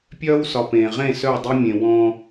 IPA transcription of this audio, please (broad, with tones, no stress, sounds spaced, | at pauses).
pʲ œː˦ w s ɒ˨ p ẽː˨ ʁ ẽ˦˨ s œ˦˨ dˤ e˦ mʲ ẽ˨ w ɔ̃˦